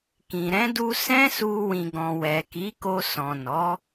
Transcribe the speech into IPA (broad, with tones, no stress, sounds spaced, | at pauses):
k ĩ˨ ɾ ɛ̃˨˦ d u˧ s ɛ̃˦ s u˧ w ĩ˨ ɡ ɔ̃˨ w ɛ˨ k i˨˦ k o˧ s ɔ̃˨ n ɔ˨˦